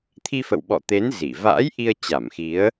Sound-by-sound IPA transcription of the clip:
t̪ʰ i˧ f ə̰˧˨ w ɓ ɔ̰˧˨ t̪ e˨˦ n z i˧˩ v a̰ː˧˥ j ʔ i˧ ə̯ t͡ɕ a˧˩ m x i˨˦ ə̯

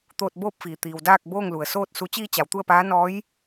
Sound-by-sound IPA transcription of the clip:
t̪ oː˧ t̚ b oː˥˨ p̚ f iː˩ t̪ iː˩ w d aː˥˨ k̚ b oː˥˨ ŋ l u˩ ə̯ s oː˥˨ t̚ s u˩˧ t͡ɕ iː˧ t͡ɕ a˩˧ w t̪ u˥˨ ə̯ p aː˧˥ n ɔː˧˥ j

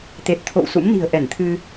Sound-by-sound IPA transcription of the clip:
t̪ e˨˩ t̚ t̪ʰ o̰˧˨ w s ṵ˧˥ m n i̤˨˩ ə̯ ʔ ɛ˧˩ n t̪ʰ ɨ˧

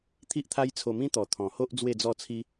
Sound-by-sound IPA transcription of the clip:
t̪ʰ i˦ ʔ t̪ʰ a˦ j t͡sʰ o˧ m ĩ˦ t̪ ɔ˨˩ t̪ʰ ɔ̃˨˩ h o˦ ʔ d͡z w e˥˧ d͡z ɔ˥˧ t͡sʰ i˦

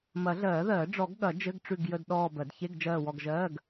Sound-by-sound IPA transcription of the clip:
m ɐ˨˩˦ ɮ ɜː˨˩˦ ð ɜː˨˩˦ ɖ͡ʐ ɔ˨˩˦ ɡ ɠ ɐ˨˩˦ d͡ʒ ɘ˧˥˧ ɡ ʈ͡ʂ ʉ˦˨ ɡ j ə˦˨ d ɗ ɔː˦˨ b ɜ˨˩˦ d ç e˧˥˧ ɡ d͡ʒ ɜː˦˨ w ɔ˦˨ ɡ ʒ ɜː˧˥˧ ɡ

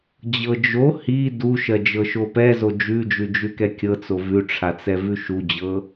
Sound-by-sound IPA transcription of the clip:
d͡ʑ ɤ d͡ʒ o h i d u ʃ ɜ d͡ʒ ɤ ʃ o p ɛ z o d͡ʒ ʉ d͡ʒ ʉ d͡ʒ ʉ k ɛ kʲ ɤ t͡s o v ʉ ʈ͡ʂʰ a t͡s ɛ v ʉ ʃ u d͡ʑ ɤ

